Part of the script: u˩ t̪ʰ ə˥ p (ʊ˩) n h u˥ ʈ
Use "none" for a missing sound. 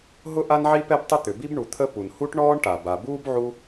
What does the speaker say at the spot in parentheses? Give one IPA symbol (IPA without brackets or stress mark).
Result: u˩